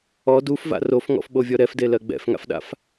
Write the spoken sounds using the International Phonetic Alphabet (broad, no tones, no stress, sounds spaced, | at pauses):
ɔ d u f v a̰ r o f ŋ ɔ̰ f ɓ o vʲ ɔ ɾ ɛ f d e l ɜ ɡ͡b ɛ̰ f ŋ a̰ f ɗ a̰ f